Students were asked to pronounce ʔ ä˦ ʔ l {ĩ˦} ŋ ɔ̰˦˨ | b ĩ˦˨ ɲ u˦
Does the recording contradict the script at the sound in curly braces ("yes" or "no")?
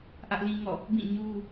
no